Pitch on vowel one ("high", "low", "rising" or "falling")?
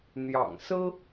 low